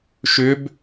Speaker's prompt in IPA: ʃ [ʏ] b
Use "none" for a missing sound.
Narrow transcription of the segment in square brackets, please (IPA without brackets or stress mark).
ʏ